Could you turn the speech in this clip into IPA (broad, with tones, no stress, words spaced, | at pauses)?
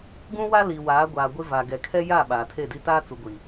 ɡũ˦wa˦ li˨waː˨˦ɡʷaː˨ ɡʷɪ˦va˨ ɡɛ˨kʰɛ˦ja˦˨ ɓaː˨tʰe˦˨di˦ taː˦t͡su˨ɡʷi˨